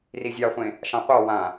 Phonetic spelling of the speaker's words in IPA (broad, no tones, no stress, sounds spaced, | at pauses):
r i zʲ ɑ χʷ ẽ | ʃ ɑ̃ qʷ ɑ w ã